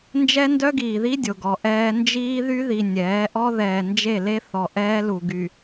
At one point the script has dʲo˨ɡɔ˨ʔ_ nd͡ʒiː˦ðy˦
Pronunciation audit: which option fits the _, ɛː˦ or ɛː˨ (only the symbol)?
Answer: ɛː˦